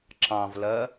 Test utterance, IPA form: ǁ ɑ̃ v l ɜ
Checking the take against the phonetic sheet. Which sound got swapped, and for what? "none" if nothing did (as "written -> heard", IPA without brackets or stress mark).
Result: none